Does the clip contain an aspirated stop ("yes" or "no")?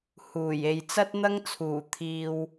yes